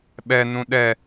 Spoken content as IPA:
ɓɛnũ ɗɛ

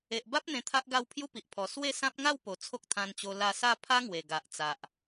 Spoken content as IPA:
e˨ʔba˦p̚ n̪ẽ˧t̪ʰa˦ʔɡa˥˧w pʰju˦pi˨ʔpʰɔ˨˩ swe˥˧sã˦p̚ ŋa˥˧wpo˨˩ t͡sʰo˦k̚t̪ʰã˧nt͡ɕo˧ la˧sa˥˧ pʰa˦ŋwe˨˩ɡa˨ʔt͡sa˨ʔ

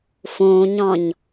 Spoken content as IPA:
fũːɲɔ̃ɲ

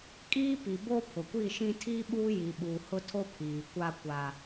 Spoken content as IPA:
kʼiː˦pi˨ bo˦pʰʊ˨kʷi˦˨ʃĩ˦ tʰiː˦ɓuː˦ji˨ɓuː˨ hʊ˦tʰo˦pʰiː˨ kʷa˦ kʷa˦

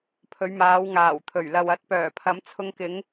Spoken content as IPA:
pʰɵ˨˧ɥmaː˨˧w ŋaː˨˩wt̪ʰɵ˨˩ɥlɐ˨wɐ˨˥t̚ pœː˨˩pʰɐ˨˧m t͡sʰʊ˧ŋ kɪ˨˧ŋ

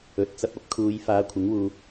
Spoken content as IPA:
ɵ˨t̚ t͡sɐ˧p̚ɐ˥p̚kʰuː˨˧j faː˨˧kʷʰɪ˨˥ŋwuː˧

